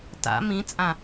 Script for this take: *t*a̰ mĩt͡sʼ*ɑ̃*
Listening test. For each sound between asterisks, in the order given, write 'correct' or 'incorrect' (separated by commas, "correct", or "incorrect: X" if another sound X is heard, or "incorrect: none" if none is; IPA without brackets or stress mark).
correct, incorrect: ã